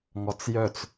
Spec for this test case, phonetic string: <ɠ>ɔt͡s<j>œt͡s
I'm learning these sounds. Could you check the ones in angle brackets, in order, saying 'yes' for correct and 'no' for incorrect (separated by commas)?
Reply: no, yes